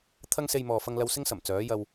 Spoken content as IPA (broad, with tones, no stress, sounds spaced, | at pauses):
t̪ʰ ɐ˥ ŋ s e˧ j m ɔː˨ f ɐ˧ ŋ l ɐ˧ w s ɪ˥ ŋ s ɐ˨˩ m t͡s œː˨˥ j ɐ˧ w